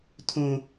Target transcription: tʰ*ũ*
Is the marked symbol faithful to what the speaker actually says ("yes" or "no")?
no